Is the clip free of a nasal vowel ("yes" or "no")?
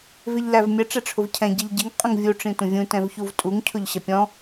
no